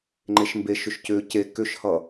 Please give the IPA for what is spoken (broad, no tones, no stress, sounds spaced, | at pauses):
ŋ͡ǃ e ʃ m b e ʃ ʏ ʃ c ʏ c e k ʏ ʃ h ʌ